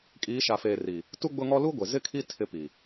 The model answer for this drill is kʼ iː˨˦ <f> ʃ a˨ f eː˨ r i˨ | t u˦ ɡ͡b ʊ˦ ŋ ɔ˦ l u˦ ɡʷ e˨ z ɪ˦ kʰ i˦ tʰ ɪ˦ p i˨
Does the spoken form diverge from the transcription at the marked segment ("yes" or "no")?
yes